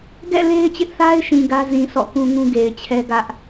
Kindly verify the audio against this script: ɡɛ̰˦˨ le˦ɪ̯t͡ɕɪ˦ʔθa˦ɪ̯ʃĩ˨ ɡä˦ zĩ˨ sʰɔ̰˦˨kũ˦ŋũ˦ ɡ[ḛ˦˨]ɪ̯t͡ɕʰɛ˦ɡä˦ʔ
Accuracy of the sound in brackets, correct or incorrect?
incorrect